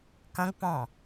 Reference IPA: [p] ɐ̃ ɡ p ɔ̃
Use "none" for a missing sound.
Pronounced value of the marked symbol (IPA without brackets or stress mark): k